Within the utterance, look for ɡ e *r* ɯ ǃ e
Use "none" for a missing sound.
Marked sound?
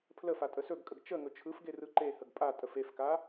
r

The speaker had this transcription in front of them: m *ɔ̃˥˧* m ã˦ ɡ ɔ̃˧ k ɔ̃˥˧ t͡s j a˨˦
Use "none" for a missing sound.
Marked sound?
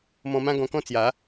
ɔ̃˧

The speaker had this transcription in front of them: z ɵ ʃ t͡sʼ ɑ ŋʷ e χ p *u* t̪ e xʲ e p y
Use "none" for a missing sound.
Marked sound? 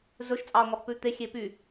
ʉ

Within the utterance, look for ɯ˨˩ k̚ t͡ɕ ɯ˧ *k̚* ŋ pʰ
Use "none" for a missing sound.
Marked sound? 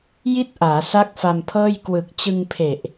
none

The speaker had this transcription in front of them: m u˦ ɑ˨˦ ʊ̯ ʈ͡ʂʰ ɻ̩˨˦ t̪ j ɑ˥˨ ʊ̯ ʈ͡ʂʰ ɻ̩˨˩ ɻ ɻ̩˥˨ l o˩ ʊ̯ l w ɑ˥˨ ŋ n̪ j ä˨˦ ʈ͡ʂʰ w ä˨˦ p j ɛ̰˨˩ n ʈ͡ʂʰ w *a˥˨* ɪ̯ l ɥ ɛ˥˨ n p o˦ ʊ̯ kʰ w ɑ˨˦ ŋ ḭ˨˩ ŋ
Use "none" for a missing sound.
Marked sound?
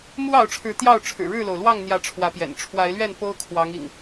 a˨˦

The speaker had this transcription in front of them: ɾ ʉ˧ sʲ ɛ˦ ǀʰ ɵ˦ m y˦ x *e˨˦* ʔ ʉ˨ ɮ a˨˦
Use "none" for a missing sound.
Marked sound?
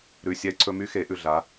e˨˦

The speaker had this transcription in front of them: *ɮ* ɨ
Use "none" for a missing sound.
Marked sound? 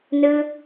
n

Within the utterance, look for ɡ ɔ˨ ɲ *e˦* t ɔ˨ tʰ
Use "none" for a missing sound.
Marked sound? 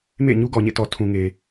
ḛ˦˨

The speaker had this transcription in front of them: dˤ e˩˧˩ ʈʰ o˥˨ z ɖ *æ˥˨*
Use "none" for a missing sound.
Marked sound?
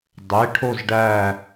æ˥˨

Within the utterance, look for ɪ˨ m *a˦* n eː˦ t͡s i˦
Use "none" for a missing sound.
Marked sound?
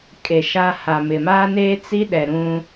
aː˦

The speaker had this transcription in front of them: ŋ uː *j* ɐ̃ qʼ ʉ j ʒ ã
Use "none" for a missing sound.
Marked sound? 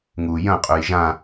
j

